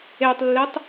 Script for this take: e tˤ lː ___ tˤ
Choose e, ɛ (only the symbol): e